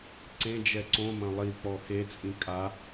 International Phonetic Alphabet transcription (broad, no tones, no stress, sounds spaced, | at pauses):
ǀ ẽ d͡ʒ ɛ ǀ õ m ɐ̃ lˠ i k͡p ɔ x e t͡sʼ ĩ kʼ a